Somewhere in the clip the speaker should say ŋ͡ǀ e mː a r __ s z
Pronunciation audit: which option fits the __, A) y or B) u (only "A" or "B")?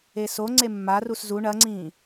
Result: B